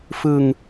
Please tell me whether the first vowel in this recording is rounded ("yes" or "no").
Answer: no